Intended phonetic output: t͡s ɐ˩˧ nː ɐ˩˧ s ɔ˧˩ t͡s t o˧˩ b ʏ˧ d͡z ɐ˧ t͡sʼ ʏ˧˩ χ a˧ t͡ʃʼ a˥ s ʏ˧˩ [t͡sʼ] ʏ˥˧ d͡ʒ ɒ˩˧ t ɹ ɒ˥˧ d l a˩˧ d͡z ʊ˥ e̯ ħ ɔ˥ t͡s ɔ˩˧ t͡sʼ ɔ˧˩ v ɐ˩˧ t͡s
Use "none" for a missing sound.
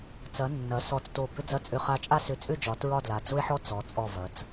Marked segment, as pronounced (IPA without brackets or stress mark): t͡sʼ